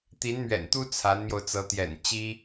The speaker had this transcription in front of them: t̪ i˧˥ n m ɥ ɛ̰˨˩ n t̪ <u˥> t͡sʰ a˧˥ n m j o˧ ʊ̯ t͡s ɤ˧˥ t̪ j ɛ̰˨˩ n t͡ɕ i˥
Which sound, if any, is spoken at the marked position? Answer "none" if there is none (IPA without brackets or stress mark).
u˥